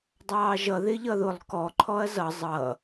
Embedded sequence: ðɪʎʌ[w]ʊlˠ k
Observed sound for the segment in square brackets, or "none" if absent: ð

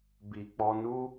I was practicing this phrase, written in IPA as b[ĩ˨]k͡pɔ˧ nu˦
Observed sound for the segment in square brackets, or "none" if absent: i˨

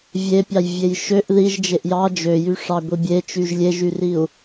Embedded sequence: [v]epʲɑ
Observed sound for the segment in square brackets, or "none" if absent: vʲ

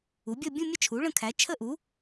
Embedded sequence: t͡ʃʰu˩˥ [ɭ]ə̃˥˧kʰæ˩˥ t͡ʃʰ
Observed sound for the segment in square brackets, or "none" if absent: ɭ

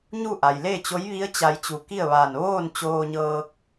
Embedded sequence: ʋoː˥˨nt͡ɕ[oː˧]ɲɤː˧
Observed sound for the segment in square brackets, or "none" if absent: oː˧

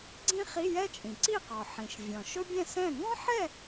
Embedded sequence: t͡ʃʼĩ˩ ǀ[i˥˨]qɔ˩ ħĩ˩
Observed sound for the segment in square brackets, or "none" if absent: i˥˨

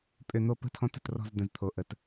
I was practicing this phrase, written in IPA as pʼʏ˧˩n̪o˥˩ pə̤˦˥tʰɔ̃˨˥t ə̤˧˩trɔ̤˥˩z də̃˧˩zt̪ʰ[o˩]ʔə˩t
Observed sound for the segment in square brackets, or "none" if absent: o˩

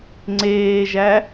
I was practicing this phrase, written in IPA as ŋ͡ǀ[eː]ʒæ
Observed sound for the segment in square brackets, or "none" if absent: eː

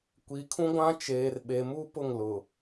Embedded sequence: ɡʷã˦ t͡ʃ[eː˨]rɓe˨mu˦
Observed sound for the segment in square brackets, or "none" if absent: eː˨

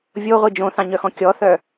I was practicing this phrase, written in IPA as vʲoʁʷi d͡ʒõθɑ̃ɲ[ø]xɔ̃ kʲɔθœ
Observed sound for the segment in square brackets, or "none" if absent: œ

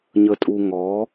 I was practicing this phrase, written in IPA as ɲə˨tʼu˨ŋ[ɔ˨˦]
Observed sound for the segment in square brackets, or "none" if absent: ɔ˨˦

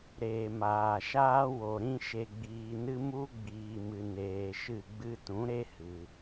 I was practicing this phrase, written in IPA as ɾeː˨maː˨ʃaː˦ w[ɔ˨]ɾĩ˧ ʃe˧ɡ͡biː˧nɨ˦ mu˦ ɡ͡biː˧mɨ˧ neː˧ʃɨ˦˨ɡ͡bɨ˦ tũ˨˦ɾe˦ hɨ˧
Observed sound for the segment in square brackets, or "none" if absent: o˨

